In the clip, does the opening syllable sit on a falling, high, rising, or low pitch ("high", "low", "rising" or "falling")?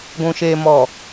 low